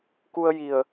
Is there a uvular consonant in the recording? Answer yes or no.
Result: no